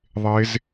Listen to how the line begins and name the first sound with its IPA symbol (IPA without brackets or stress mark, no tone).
ðˤ